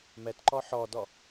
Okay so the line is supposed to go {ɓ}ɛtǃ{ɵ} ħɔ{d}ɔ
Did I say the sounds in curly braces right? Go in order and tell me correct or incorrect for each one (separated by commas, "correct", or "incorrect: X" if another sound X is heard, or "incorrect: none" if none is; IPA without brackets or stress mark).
incorrect: m, incorrect: ɔ, correct